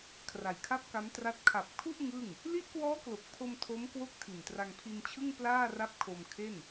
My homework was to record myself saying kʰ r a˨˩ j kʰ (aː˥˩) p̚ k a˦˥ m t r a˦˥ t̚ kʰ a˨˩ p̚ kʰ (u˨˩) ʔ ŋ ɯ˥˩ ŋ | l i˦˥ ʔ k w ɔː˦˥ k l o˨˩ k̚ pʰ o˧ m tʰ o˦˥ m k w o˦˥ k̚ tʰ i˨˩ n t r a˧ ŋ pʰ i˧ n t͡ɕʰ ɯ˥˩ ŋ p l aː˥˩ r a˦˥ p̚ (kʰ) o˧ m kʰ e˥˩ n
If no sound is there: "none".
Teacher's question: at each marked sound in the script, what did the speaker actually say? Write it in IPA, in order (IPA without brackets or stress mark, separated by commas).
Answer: a˥˩, u˥˩, kʰ